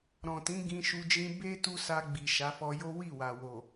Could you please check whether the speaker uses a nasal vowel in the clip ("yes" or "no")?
yes